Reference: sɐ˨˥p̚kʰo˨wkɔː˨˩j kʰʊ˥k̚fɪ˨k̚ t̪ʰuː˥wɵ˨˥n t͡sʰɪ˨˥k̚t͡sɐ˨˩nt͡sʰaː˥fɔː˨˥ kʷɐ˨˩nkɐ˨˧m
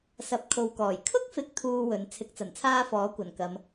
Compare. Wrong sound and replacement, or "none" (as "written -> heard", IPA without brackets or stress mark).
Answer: none